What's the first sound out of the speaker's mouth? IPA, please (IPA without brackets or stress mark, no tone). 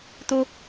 t̪